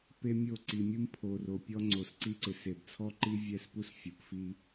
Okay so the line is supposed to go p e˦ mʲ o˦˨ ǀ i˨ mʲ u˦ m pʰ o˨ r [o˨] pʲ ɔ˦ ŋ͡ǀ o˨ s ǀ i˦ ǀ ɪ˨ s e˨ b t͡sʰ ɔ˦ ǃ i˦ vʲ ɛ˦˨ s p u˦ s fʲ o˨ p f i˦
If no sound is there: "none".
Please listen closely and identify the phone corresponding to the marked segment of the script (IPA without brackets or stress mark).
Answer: o˨